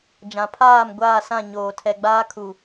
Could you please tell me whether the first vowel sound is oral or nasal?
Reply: nasal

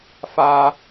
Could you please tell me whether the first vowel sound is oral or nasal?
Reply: oral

